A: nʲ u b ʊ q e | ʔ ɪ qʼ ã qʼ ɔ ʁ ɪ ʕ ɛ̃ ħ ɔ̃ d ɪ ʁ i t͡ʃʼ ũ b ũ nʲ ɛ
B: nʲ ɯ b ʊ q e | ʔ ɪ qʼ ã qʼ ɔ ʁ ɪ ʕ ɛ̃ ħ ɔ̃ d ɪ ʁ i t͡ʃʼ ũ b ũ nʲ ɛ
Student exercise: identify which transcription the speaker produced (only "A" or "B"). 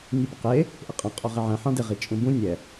A